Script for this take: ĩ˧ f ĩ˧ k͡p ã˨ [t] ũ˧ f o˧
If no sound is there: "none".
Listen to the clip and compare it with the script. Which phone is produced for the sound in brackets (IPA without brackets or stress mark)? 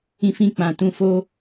t